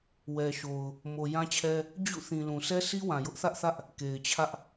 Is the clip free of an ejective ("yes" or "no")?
yes